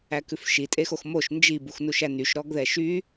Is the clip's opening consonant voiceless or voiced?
voiceless